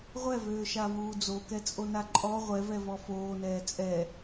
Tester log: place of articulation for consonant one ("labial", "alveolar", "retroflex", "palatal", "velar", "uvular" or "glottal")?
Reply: uvular